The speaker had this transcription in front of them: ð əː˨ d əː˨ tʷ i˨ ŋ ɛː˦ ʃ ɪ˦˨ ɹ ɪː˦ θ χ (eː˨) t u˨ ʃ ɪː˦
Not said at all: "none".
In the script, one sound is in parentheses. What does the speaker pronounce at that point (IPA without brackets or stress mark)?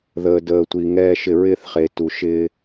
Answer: eː˨